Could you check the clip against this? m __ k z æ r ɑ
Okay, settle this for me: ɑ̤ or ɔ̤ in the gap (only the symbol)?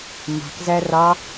ɑ̤